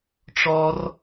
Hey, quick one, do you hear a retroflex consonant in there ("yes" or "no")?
yes